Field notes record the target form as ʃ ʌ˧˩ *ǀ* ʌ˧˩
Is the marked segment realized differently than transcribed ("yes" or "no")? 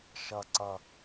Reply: no